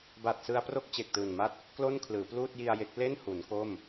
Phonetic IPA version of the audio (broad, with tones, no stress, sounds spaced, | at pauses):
b a˨˩ t̚ s ɯ˧ a̯ p r o˥˩ k̚ t͡ɕ e˨˩ k̚ t ɯː˨˩ n m a˥˩ t̚ | k l o˥˩ n kʰ l ɯː˩˦ p l uː˥˩ t̚ j i˧ a̯ j e˦˥ k̚ l e˥˩ n h u˩˦ n k o˥˩ m